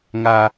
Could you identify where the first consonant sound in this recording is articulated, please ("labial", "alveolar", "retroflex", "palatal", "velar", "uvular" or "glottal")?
velar